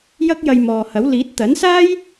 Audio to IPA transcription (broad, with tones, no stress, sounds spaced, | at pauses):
j ɐ˥ k̚ j ɐ˧ j m ɔː˨ h ɐ˨˥ w l iː˨˥ t̚ t̪ ɐ˨˥ n s aː˥ j